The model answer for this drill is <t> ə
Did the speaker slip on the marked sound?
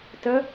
no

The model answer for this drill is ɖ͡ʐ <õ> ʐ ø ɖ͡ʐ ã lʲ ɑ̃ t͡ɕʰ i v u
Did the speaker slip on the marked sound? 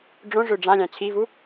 no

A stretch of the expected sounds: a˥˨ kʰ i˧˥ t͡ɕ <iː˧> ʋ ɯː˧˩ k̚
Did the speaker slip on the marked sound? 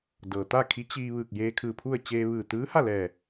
no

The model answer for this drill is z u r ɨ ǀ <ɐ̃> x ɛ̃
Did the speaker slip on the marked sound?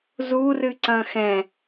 no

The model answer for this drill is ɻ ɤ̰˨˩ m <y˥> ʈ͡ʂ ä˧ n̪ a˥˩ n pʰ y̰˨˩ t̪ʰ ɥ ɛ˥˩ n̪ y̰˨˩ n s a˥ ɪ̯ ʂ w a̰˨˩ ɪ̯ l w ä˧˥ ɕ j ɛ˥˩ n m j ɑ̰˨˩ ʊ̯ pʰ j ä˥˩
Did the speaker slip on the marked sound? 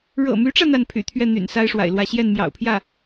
yes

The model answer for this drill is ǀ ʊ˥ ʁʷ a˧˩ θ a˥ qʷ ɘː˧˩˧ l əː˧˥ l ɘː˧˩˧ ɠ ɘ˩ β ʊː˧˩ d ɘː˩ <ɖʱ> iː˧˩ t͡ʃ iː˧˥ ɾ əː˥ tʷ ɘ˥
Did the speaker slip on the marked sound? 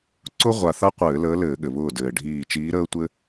no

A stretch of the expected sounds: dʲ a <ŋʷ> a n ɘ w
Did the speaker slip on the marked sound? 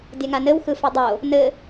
yes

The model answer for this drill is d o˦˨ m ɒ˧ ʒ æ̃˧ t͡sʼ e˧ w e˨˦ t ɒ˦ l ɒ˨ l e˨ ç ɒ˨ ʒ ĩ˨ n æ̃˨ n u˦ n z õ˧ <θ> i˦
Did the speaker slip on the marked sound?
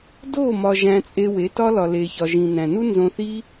no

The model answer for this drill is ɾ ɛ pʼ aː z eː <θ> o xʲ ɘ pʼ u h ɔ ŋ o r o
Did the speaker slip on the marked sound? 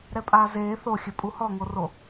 no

